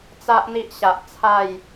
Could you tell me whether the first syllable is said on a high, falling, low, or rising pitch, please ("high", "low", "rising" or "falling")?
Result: high